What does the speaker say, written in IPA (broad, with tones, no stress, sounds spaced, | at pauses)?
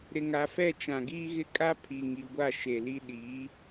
ɾ ɪ˨ ŋ a˨ f ɛ˦˨ t͡ʃ ã˨ ɡ iː˦ ɣ ɪ˦ kʼ a˦ pʰ i˨ ŋ i˨ ɡʷ a˦˨ ʃ e˨ l i˦ ɗ iː˨˦